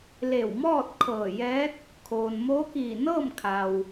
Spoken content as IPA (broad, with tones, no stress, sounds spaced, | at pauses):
l e˧˩ w m ɔː˥˨ t̚ kʰ ɤː˧˩ j ɛː˧˥ t̚ | kʰ oː˩ n m oː˧˥ k iː˧˩ n ɤː˥˨ m kʰ a˩ w